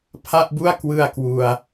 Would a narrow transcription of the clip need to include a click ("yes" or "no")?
no